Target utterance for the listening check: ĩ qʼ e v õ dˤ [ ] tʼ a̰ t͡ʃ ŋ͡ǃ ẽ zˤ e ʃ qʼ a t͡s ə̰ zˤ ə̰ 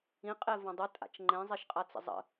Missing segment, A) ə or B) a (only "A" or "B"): A